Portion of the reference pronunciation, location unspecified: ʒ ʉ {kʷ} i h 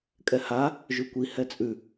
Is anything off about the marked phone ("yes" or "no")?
no